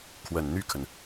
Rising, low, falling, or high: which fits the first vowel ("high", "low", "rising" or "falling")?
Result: low